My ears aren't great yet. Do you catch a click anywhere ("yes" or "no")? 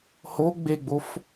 no